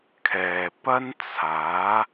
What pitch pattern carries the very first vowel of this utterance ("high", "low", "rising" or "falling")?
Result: low